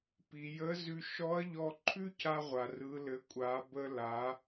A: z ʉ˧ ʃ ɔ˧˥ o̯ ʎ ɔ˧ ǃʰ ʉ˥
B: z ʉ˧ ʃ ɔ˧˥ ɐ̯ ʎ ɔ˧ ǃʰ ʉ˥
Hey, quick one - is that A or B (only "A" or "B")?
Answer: B